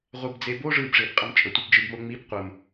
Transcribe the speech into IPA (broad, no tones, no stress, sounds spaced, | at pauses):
ʁʷ ɛ b d͡z e b o ʐ ɯ b ʐ e b qʼ ə m t͡ʃʼ ə tʷ ɛ b d͡ʒ ɯ b m o ŋ͡m i b qʷ ə m